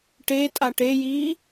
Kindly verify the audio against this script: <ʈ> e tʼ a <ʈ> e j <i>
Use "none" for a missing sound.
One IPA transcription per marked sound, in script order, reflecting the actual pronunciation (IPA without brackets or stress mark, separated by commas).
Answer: ʈ, ʈ, iː